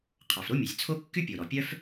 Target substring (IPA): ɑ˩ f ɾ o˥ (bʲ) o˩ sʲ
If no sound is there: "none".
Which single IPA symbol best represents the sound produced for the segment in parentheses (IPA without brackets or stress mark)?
mʲ